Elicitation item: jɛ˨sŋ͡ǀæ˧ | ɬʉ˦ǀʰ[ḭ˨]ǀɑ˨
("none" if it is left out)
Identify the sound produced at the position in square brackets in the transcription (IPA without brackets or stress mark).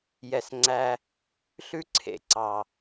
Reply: ḛ˨